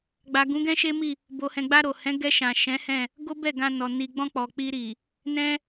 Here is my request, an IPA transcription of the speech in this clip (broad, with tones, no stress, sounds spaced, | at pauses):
ɡ͡b a˨ ɡ ũ˨˦ ɡ ɛ̃˦ ʃ e˦ m i˦˨ | b o˨ h ɛ̃˨ ɡ͡b a˧ ɾ o˨ h ɛ̃˨˦ ɡ ɛ˧ ʃ ã˨ ʃ ɛ̃˨˦ h ɛ̃˦˨ | ɡ o˦ b ɛ˦˨ ɡ ã˧ n ɔ˨ n i˨ ɡ͡b ɔ̃˧ k͡p ɔ˨ k͡p i˧ ɾ i˨ | n ɛ̃˦